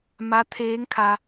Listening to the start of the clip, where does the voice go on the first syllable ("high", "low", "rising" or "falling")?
rising